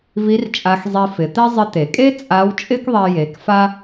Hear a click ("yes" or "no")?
no